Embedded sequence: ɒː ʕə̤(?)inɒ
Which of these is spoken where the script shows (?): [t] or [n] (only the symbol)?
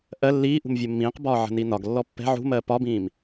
n